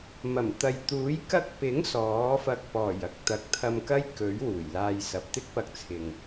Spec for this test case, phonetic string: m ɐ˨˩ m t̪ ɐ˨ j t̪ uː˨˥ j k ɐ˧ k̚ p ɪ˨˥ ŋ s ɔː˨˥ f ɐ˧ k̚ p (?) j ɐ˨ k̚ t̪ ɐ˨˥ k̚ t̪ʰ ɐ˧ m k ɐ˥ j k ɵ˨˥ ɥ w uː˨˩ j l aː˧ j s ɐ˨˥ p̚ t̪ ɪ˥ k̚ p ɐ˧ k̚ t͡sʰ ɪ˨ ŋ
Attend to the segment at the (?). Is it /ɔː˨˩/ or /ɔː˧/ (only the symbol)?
ɔː˨˩